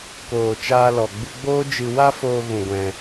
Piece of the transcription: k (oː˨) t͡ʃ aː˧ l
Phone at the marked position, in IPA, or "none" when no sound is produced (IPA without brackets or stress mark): oː˨